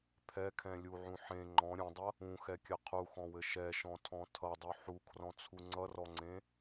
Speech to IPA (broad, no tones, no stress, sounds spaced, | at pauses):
pʰ ɛ kʰ ɛ̃ lʲ u ʕ ũ ħ ẽ ŋ͡ǃ ɔ̃ ɾʲ ũ dˤ ʌ | ũ x ɛ kʲ ɘ qʰ u x ɔ̃ w ɘ ʃ ɛ ʃ ɔ̃ tʰ ɔ̃ tʰ ʌ dˤ u ħ u kʰ r ɔ̃ t͡sʰ u ŋ͡ǀ ʌ r ɔ ŋ͡ǀ ẽ